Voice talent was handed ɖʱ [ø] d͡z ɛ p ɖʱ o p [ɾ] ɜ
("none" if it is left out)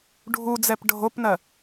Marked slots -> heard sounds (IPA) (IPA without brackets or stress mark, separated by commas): u, n